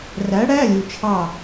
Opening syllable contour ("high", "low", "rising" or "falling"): rising